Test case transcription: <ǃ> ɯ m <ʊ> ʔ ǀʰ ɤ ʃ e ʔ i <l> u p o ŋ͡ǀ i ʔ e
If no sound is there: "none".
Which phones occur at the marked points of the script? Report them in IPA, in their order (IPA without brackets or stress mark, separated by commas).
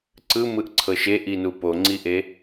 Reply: ǀ, ɯ, n